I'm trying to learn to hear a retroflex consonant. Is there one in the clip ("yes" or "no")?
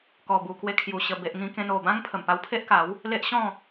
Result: no